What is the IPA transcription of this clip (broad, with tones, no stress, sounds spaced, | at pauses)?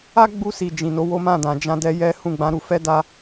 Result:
a˦ ɡ͡b u˧ s i˨ d͡ʒ ĩ˨ n o˨˦ w o˦ m ã˦˨ d ã˨ d͡ʒ ã˧ d ɛ˧ j ɛ˦ h ũ˦˨ ɡ͡b ã˨˦ ɾ u˧ f ɛ˦ d a˧